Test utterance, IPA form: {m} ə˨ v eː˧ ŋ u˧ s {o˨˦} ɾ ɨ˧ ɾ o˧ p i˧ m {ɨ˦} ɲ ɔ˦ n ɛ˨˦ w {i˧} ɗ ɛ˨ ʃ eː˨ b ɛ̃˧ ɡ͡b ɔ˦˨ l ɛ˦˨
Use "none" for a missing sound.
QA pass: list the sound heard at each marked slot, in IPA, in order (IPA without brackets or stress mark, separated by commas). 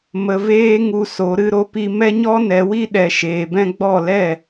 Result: m, o˨˦, ɛ˦, i˦